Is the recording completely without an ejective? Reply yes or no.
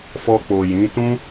yes